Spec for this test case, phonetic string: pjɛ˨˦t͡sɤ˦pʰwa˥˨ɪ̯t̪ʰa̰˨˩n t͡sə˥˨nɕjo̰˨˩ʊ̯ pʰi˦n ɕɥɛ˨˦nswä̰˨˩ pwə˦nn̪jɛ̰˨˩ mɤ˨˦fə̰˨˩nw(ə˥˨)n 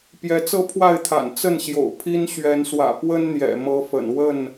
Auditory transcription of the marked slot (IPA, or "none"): ə˥˨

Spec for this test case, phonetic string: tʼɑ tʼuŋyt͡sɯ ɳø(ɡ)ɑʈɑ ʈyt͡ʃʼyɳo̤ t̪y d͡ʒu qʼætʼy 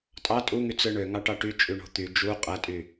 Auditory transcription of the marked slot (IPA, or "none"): ŋ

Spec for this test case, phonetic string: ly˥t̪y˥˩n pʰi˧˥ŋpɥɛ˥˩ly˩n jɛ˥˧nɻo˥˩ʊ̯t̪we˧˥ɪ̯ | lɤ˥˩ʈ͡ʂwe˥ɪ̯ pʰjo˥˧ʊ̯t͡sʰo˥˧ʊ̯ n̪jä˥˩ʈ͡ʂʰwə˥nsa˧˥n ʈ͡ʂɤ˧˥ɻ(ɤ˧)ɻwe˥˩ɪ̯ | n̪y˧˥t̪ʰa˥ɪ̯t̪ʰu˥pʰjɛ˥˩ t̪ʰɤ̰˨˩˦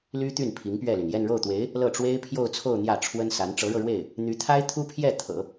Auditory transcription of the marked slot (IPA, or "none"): ɤ˧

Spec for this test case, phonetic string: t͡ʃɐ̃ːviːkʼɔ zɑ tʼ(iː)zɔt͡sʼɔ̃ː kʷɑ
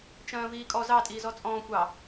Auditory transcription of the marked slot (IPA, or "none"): iː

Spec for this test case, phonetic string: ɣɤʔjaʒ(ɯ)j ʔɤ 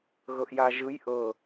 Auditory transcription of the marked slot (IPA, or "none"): ɯ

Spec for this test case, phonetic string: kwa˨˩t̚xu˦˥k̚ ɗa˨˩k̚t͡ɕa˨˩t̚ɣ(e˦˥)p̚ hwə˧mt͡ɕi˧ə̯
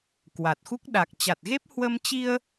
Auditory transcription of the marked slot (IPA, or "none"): e˦˥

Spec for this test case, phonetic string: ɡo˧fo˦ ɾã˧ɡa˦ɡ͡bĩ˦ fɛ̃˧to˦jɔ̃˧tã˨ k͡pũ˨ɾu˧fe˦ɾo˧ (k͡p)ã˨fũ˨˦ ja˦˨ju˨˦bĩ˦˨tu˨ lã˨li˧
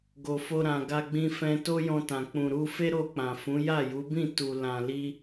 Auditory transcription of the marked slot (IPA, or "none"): k͡p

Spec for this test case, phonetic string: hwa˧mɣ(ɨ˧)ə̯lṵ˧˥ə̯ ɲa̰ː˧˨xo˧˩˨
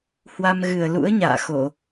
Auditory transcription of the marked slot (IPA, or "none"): ɨ˨˩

